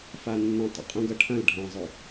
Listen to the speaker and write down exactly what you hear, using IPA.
f a nː ə̃ tˤ ə̰ qʼ ũ ɡ ɐ ʈʰ ɐ̃ l ɖʱ ɐ̃ zˤ ø

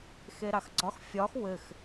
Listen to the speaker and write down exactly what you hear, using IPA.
x e ɾ ɑ x ɡ͡ǀ ɒ x fʲ ɒ x w ɘ x

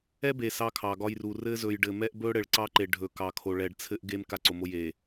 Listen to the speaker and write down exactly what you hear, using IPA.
ɛ˦ b e˨ s ɑ˦ kʰ ɑ˨ ɡ ɒ˦ j r u˨ r ɘ˦ z ɵ˨ j ɖ ɘ˨ m ɛ˦ ʔ b ɵ˦ ɽ ɘ˨ ɭ ǀ ɑ˦ ǃ e˨ ɖʱ ɵ˨ k ɑ˨ kʰ o˨ ɭ ɛ˨ ɖ t͡sʰ ɘ˦ ʔ ɡ e˦ m k a˦ ǀ o˨ m o˦ j e˨

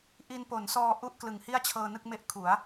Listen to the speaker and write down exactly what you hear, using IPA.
ʔ i˧ n p o˩˦ n s ɔː˧ ʔ u˦˥ ʔ k l ɯ˨˩ ŋ h i˥˩ a̯ t͡ɕʰ ɤː˧ n ɯ˥˩ k̚ m e˥˩ ʔ kʰ u˩˦ a̯

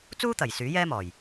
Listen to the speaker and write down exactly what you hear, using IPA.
t͡s uː˥ t̪ ɐ˨˩ j s yː˨˥ j ɛː˥ m ɔː˨˩ j

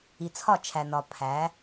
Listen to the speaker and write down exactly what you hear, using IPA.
i˨ t͡sʰ ɒ˦˨ t͡ʃʰ æ˨ n ɒ˨ pʰ æ˨˦

